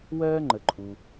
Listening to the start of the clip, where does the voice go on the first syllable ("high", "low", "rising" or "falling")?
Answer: high